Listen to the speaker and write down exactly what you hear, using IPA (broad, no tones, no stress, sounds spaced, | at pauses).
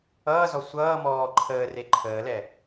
ʌː z ɔ sʷ ʌː m ɔː ǃʰ əː r e ǃʰ əː l ɛ